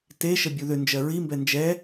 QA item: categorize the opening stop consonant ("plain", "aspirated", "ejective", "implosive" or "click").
plain